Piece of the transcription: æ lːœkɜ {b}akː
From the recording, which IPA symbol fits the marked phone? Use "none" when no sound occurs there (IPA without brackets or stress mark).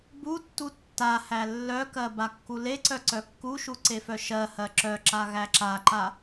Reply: b